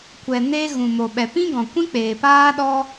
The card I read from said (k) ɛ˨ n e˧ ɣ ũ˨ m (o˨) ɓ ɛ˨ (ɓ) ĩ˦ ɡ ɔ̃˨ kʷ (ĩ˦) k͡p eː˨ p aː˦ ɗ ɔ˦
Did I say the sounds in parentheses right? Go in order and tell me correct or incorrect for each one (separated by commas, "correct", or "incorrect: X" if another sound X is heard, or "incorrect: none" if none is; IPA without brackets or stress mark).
incorrect: kʷ, correct, incorrect: p, correct